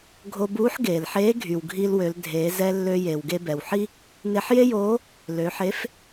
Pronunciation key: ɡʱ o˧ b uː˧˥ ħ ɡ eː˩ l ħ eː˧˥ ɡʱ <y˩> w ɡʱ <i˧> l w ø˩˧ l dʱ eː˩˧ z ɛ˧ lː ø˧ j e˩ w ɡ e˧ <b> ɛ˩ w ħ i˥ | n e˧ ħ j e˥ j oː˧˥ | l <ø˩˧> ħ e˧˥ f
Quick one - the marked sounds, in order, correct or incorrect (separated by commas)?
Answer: correct, correct, correct, correct